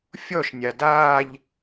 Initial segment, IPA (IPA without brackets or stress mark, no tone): fʲ